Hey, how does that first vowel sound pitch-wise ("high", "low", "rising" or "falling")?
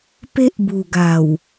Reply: high